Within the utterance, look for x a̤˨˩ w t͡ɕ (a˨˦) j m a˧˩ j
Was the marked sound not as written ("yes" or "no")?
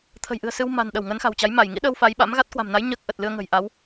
no